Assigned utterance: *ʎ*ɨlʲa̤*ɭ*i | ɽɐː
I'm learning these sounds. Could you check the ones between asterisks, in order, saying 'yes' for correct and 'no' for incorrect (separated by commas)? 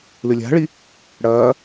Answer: no, yes